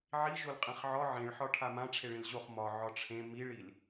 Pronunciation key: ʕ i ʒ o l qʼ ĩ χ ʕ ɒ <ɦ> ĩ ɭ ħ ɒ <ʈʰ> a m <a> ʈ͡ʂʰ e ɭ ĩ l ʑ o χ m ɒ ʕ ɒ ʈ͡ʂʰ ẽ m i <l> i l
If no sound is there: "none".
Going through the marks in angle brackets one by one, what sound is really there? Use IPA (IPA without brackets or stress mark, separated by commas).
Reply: ʕ, ʈʰ, ã, ɭ